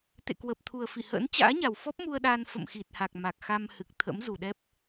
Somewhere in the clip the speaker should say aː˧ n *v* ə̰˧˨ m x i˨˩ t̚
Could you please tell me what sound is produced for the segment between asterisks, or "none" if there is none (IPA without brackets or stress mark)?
f